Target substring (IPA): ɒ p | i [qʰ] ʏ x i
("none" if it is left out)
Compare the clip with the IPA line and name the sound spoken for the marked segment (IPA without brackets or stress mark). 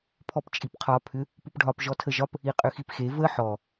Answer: qʼ